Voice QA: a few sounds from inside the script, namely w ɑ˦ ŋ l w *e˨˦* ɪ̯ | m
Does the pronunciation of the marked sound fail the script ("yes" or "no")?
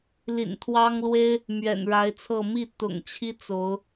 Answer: yes